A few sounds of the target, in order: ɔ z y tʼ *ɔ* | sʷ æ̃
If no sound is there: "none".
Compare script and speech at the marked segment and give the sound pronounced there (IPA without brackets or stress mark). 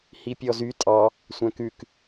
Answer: ɑ